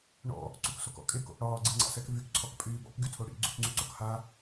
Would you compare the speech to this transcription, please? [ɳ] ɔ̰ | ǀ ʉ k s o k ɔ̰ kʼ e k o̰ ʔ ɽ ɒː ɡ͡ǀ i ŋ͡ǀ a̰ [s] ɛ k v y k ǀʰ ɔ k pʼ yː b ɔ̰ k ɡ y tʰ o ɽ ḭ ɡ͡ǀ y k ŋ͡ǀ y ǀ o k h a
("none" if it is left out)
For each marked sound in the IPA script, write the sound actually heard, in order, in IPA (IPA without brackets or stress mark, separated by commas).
ɳ, s